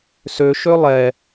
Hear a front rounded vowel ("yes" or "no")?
yes